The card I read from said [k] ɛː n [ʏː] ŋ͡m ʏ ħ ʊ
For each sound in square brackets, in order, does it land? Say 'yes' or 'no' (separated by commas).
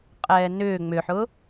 no, yes